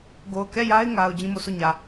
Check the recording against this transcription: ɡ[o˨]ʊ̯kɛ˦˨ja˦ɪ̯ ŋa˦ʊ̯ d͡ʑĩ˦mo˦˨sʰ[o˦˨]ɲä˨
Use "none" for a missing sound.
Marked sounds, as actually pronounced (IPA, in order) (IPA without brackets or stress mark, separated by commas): o˨, o˦˨